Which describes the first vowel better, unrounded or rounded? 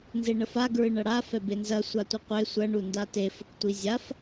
unrounded